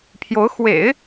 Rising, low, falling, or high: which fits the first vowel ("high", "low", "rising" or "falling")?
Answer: rising